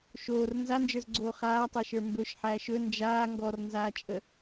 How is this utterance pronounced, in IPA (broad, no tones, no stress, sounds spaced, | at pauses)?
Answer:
ʃ oː r n z a n d͡ʒ ə˞ z ɡ͡ǀ oː χ aː tˤ əː ʃ ə˞ m b ɵ ʃ ħ æː ʃ ɵ n d͡ʒ aː ŋ ɡ ɔ r n z aː t͡ʃʼ ə